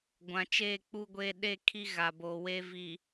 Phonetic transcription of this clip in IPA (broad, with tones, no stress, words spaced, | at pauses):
ɡʷã˨t͡ʃeː˦˨k͡pu˦ɡʷeː˦ ɗe˦˨ kʰi˦ ɣa˨boː˨we˦ vi˨